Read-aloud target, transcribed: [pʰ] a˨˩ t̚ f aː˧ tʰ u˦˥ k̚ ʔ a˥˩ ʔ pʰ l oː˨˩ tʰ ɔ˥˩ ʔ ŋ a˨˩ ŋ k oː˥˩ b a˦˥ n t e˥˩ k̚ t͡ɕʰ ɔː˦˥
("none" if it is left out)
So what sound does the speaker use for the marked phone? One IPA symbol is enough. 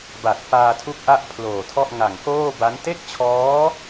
b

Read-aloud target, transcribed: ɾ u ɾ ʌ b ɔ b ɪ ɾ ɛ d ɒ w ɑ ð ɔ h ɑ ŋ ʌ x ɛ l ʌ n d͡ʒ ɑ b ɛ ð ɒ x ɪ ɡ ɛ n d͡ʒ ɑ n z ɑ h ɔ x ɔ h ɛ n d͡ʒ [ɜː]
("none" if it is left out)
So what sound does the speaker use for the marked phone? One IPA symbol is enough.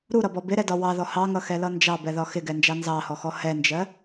ɜ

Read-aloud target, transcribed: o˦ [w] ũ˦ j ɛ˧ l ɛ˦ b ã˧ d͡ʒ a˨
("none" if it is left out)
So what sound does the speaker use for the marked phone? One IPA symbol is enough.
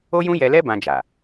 j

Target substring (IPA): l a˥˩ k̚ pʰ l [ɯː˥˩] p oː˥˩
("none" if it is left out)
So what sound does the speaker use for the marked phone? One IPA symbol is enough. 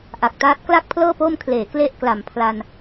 ɤː˥˩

